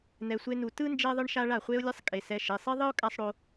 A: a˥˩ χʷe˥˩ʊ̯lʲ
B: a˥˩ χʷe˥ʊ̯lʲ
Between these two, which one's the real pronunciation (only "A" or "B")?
B